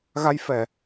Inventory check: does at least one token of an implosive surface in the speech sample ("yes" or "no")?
no